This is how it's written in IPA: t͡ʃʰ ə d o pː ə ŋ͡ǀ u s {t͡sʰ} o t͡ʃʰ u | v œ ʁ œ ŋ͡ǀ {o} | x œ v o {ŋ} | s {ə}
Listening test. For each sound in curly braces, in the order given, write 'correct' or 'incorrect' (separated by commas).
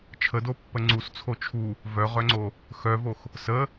correct, correct, incorrect, correct